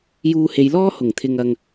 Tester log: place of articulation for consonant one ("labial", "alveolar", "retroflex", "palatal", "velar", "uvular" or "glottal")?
palatal